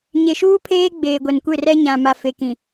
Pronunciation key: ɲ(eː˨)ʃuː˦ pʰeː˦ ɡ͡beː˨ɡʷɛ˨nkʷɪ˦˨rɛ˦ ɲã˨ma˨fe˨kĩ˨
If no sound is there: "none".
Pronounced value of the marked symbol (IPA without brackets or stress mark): e˨